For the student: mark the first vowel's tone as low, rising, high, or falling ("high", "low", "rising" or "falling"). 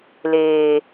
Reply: low